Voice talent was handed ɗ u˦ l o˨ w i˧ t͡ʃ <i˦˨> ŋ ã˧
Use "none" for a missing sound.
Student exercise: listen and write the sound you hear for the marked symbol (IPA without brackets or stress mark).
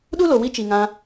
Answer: i˨